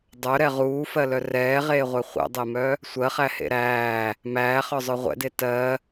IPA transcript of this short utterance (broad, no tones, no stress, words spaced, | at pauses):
dˤœɾɛ ʁuːfɜlœ rɛːʁeːʁʷɛ χʷɛ̰dˤemœ | sʷɜχæhḛ ɾæː | mæːχœzˤœ ʁʷɛ̰de tɜ